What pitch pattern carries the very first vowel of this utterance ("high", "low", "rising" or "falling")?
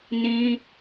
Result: high